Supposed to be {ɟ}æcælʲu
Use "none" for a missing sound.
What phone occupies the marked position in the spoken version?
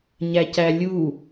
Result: ɲ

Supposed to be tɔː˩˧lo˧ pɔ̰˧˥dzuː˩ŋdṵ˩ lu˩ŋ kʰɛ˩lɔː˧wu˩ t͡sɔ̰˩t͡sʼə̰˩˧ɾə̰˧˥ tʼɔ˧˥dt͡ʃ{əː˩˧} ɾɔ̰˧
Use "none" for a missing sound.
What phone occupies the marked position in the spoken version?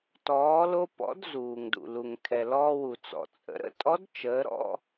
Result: əː˩˧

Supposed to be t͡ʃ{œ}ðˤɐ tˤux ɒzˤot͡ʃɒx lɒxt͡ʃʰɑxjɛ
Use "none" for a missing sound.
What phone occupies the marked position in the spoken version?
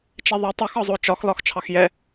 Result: ɛ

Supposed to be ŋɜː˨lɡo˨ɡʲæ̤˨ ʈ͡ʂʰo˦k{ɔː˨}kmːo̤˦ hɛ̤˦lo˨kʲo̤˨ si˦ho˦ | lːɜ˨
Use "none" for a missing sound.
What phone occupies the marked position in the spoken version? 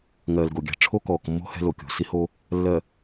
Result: ɔː˨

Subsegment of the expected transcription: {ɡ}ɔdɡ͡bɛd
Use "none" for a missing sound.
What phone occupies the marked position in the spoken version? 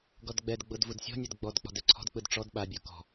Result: ɡ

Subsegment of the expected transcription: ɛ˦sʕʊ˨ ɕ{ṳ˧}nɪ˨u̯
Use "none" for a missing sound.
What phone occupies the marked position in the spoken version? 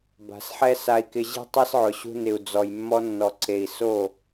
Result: ṳ˧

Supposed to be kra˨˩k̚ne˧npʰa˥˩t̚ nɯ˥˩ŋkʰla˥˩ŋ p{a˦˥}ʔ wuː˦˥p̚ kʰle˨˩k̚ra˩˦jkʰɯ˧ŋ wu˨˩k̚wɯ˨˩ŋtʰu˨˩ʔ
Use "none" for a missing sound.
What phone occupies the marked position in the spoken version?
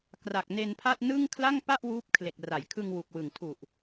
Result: a˥˩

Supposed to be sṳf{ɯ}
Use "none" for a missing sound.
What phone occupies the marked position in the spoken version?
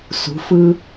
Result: ɯ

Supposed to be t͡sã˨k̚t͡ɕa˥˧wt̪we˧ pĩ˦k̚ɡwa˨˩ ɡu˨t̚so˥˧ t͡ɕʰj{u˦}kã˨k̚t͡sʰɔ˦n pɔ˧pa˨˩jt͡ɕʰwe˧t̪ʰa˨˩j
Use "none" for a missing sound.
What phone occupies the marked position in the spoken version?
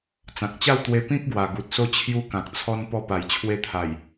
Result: u˦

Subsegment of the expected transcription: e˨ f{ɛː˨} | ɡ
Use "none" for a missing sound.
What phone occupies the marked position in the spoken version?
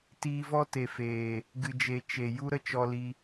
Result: eː˨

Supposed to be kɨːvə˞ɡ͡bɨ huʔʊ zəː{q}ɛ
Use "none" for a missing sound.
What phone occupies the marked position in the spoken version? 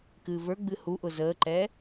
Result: ǃ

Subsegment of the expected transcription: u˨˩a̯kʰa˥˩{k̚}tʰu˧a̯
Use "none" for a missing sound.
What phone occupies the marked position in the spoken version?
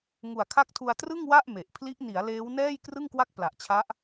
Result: k̚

